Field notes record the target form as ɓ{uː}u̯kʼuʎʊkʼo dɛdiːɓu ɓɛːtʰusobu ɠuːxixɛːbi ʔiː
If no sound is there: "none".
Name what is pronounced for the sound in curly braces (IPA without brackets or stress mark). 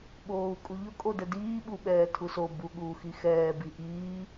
oː